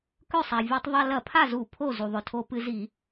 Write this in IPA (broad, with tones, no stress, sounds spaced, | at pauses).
k ɵ˥˩ sˤ a˩ vʲ o˧˩˧ tˤ ðˤ a˧ l ɐ˧˩˧ pʰ a˥˩ z u˧˩˧ pʰ o˥˩ z u˩ ðˤ ɵ˩ tʰ o˧ p ɨ˧ z i˧˩˧